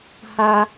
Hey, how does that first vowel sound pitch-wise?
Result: high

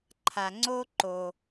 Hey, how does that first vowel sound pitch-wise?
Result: low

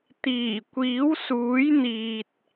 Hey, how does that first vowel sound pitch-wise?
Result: low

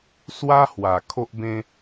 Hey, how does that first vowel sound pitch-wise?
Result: high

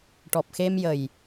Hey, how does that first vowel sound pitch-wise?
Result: low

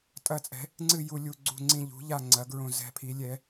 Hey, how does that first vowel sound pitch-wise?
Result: falling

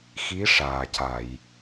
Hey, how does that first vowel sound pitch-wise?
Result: rising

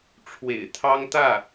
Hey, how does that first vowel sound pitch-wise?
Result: low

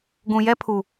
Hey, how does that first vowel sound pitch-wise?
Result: low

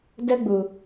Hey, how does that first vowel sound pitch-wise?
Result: high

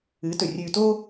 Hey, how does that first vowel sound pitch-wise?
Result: rising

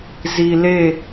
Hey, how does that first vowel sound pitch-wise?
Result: low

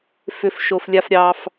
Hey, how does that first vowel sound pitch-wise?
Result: high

